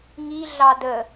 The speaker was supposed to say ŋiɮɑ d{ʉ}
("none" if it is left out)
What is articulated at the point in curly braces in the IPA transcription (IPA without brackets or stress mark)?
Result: ə